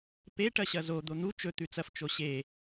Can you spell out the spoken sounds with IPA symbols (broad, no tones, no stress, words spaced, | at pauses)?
pe ʈɐɕɐzo d̪on̪u t͡ʃɵ t̪ʉt͡sɐf t͡ʃoɕe